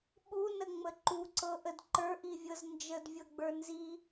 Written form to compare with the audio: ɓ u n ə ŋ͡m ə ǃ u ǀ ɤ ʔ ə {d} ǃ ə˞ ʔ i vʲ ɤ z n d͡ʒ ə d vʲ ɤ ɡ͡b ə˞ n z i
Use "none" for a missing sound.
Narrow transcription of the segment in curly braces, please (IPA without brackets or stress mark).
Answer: d